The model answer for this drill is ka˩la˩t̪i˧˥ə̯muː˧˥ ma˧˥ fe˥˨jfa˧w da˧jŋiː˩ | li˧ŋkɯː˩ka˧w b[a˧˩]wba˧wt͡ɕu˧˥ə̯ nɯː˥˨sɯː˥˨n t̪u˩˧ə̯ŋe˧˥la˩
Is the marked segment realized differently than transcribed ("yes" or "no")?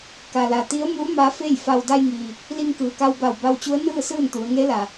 no